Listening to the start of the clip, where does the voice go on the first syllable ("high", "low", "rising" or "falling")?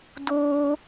high